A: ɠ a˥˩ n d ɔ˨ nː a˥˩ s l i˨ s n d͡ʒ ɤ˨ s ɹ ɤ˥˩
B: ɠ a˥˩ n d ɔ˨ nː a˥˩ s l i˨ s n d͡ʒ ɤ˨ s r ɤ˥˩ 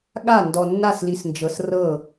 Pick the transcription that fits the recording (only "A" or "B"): B